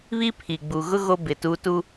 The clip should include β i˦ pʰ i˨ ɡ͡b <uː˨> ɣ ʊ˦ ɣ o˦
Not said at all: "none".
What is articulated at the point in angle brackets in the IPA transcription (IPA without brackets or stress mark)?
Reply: u˨